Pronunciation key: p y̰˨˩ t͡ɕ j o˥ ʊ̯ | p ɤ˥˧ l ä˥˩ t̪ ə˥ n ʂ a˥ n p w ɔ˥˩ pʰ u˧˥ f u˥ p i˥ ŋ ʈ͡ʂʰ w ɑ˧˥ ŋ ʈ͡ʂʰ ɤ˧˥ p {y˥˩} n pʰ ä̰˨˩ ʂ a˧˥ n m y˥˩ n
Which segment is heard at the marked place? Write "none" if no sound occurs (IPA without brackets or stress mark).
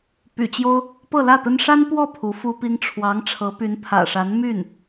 y˧˥